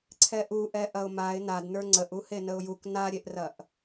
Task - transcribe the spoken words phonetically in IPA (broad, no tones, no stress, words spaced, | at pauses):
ǀʰɛʔuʔɛ ʔɐʊ̯maɪ̯ nadnə˞ ŋ͡ǀəʔu henəʊ̯juk naɾʲeʔrɐʔ